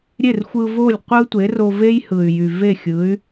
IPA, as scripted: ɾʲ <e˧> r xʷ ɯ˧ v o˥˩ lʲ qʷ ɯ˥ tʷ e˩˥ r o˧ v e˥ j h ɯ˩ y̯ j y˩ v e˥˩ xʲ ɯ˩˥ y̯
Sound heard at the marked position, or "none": e˥˩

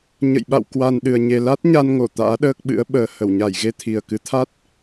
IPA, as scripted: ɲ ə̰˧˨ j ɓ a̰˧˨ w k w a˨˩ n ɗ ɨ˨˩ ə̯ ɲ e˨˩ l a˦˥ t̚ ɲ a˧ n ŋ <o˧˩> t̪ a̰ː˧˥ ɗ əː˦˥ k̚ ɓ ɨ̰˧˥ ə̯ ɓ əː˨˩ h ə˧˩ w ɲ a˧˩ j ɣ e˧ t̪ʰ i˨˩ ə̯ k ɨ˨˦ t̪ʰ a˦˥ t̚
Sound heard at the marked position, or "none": o˧˩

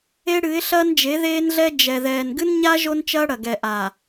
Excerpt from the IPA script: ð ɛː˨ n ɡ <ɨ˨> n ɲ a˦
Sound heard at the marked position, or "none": ɨ˦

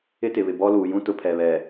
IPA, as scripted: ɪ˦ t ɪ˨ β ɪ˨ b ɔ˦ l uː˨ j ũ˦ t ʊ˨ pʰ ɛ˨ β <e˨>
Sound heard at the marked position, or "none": ɛ˨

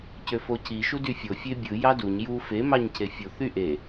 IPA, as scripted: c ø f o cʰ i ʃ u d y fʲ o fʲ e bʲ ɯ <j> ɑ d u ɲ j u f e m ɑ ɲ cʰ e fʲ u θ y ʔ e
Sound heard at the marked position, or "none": j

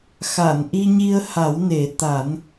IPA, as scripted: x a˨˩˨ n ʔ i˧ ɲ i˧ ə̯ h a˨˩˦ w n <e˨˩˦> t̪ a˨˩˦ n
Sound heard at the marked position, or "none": e˨˩˦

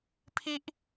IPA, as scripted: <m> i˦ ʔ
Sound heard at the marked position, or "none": pʰ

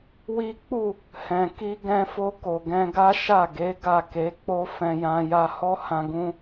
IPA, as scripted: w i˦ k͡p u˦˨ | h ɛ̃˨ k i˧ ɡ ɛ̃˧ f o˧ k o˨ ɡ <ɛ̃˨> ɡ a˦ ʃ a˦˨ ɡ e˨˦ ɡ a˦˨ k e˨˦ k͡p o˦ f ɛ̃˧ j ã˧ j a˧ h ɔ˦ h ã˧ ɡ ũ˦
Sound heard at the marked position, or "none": ɛ̃˧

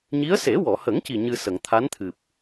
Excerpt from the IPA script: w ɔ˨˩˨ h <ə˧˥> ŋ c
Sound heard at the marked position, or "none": ə˨˩˦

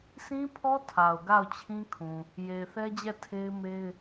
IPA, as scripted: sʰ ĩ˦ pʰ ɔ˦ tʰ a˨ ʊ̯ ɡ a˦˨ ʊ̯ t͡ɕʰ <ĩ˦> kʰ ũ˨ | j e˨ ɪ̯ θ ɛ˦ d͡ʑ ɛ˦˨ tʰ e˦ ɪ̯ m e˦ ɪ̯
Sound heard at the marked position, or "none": ĩ˦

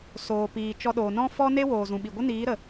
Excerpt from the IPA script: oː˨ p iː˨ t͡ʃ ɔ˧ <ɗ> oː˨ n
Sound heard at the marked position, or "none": ɗ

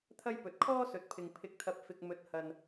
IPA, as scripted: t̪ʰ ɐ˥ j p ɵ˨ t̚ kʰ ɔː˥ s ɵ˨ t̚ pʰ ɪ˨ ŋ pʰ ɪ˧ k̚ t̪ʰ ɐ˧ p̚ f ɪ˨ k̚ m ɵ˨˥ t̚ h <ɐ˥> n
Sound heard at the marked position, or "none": ɐ˨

